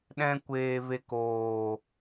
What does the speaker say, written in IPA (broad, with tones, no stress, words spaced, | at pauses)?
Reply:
ɗɛ̃˦kʷeː˧ve˧k oː˨